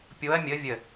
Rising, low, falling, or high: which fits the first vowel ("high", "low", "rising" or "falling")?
rising